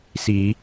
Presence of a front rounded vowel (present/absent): absent